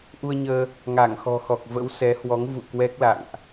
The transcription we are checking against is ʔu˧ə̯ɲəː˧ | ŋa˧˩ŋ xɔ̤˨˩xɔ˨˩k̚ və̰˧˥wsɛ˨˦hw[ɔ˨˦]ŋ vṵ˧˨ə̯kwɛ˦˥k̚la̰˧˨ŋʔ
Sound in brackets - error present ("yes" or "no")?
no